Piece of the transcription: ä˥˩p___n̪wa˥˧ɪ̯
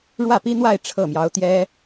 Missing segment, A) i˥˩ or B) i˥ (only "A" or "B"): B